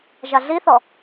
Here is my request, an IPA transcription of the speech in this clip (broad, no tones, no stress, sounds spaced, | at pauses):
ʒ a ɮ i θ ɔ